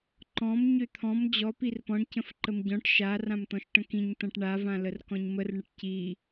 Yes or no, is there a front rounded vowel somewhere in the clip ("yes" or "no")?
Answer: yes